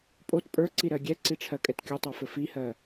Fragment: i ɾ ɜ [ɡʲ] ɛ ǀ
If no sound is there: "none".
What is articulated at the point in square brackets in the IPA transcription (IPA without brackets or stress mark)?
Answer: ɡʲ